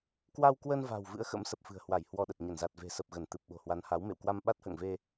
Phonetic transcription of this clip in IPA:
k w a˧ w k w ə˧ n v a̤˨˩ w v ɨ̰˧˥ ə̯ x ə̰˧˥ m s ə˨˩ p̚ f ɨ̤˨˩ ə̯ h w a˧˩ j h w ɔ˧ ɗ ə˨˩ t̚ ɲ ə˧˩ n z a˨˩ t̚ v e̤˨˩ s ə˨˩ p̚ ɣ ə˧˩ n t̪ ɨ˨˩ p̚ ɓ o̤˨˩ h w a˨˦ n h a˨˦ w m ḛ˧˨ w k w a˧ m ɓ a˦˥ t̚ h ə̰ː˧˨ ŋ v e˧

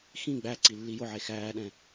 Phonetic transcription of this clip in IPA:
x ĩ ɡ͡b æ ǀ i lː i j ʊ ʕ e x æː ɗ ɛ̃

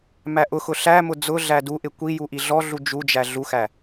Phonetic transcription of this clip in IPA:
m æ ʔ ʊ x ʊ ɬ æ m ʊ d͡z ʊ ɮ æ d u ʔ ɪ kʷ i j u ʔ i ɮ ɔ ɮ u d͡ʒ u d͡ʒ æ ɮ u x æ

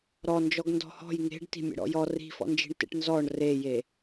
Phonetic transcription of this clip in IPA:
ɾ ɔ n d͡ʒ ɔ ɡ n d ɔ̤ h ɔ̤ j ŋ e̤ ɖ t i̤ mʲ ḛ ɽ ɔ̰ j ɔ r i̤ f ɔ̰ n d͡ʒ i̤ ɳ t ḛ ʈ n z ɔ ɳ r e j e

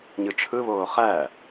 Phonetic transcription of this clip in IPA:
ɲ ɯ t͡ʃʰ ɯ β oː χ æ

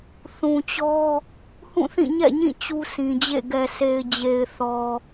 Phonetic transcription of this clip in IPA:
θ ũ˨ t͡ɕ ɔ˦ | h ũ˦˨ θ ĩ˦˨ ɲ ɛ̰˦˨ ɲ ĩ˦˨ t͡ɕ u˦ sʰ ĩ˨ d͡ʑ ḛ˦˨ ɡ ɛ˨ s e˨ ɪ̯ d͡ʑ e˨ ɪ̯ θ ɔ˨

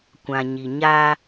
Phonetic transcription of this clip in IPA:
kʷ ã˨ ɲ i˨ ɲ a˦

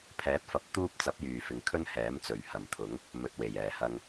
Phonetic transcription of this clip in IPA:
pʰ ɛː˨˥ t̚ f ɐ˨˥ p̚ t̪ uː˥ p̚ t͡s ɐ˨˥ p̚ j yː˨˩ f ɪ˨ ŋ kʰ ɵ˥ n h ɛː˨˥ m t͡s ɵ˨˩ ɥ h ɐ˨˩ m t̪ʰ ʊ˨˥ ŋ | m ɵ˨ t̚ w e˨˩ j ɛː˨˩ h ɐ˧ ŋ

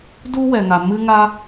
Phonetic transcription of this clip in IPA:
d u˥ w ɛ˩ ŋ a˩ m ɨ˥ ŋ a˥

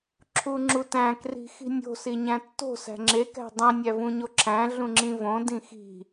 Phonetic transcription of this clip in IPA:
ǁʰ u ŋ͡ǁ u t æ̃ k r i̤ x i̤ nʲ o̤ s i ɲ æ̃ tː o̤ s æ̤ ŋ͡ǁ e k æ̤ dˤ ĩ nʲ æ v ũ ɲ o ǁʰ æ̃ ɮ ũ ŋ͡ǁ ĩ v õ d ĩ x i̤

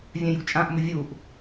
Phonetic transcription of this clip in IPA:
vʲ œ̃ j ṳ t͡ʃʼ ã ʔ m ʊ vʲ u ʔ

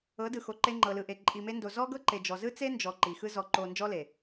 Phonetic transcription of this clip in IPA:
ɤ˨˦ d ɯ˨ x o˨ ǃ e˧ ŋ͡ǃ ɤ˨ l ɯ˨ ʔ e˨ ǃʼ i˨ m e˧ n d o˨ z ɔ˦ ɡ ɤ˦ ǃ e˨ d͡ʒ ɔ˨ z ɯ˦ t͡s e˦ n d͡ʒ ɔ˨ ǃ i˨ x ɯ˦ z ɔ˧ ǃ o˧ n d͡ʒ ɔ˦ l e˨

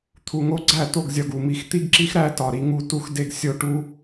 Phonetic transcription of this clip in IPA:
t̪ʰ u˨ ŋ o˦ ɡ͡ǀ æ˦˨ t̪ o˦˨ ɡ zʲ ɒ˨ ɡ u˨ m i˨ x t̪ i˦ ɡ ǁ i˦ x ɾ æ˦ t ɒ˨ ɾ i˦ ŋ u˦ t u˦ x d e˦ ɡ sʲ o˦ ʈ u˦

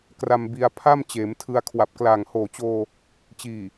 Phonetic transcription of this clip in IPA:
k r a˧ m b i˧ a̯ pʰ a˥˩ m t͡ɕ eː˩˦ m tʰ ɯ˧ a̯ kʰ w a˨˩ p̚ k l aː˨˩ ŋ h oː˨˩ t͡ɕ oː˧ | t͡ɕ iː˨˩

